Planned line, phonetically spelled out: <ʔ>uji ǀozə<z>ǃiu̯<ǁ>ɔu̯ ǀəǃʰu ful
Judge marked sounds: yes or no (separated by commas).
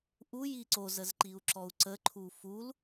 yes, yes, yes